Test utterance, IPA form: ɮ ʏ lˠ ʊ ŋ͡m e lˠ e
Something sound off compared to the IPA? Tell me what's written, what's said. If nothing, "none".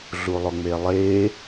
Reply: ʏ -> u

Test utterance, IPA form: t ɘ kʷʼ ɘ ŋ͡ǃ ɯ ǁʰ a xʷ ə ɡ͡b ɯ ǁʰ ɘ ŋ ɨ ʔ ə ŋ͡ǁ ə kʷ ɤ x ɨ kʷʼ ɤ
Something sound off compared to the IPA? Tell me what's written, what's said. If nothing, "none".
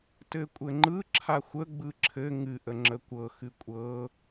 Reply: none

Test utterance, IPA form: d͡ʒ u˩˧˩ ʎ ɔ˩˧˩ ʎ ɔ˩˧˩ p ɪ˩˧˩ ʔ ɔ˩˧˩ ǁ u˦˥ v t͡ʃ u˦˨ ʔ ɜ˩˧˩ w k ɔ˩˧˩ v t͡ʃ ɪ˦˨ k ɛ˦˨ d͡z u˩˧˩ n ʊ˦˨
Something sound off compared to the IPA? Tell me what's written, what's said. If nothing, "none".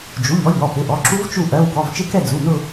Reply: none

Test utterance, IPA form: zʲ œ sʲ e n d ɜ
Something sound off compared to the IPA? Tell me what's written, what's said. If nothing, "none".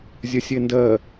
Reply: none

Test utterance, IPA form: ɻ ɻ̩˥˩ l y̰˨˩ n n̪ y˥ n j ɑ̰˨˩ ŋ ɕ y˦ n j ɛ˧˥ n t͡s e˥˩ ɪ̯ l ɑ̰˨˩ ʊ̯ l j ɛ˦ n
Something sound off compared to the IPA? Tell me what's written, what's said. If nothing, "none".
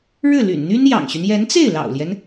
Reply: none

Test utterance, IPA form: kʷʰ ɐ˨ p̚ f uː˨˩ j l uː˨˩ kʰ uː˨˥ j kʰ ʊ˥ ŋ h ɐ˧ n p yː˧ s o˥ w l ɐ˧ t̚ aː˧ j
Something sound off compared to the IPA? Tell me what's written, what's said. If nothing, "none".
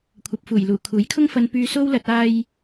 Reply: h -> f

